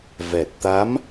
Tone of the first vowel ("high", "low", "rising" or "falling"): low